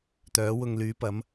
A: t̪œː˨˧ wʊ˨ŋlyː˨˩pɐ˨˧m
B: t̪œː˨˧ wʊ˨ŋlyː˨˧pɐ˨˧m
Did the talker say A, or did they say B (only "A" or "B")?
B